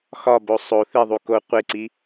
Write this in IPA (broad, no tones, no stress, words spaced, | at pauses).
xɒbo sˤo θiðˤu ko qʷeǀi